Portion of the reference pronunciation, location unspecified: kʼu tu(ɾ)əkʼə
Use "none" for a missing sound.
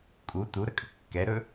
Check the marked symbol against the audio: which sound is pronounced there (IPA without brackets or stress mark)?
ɾ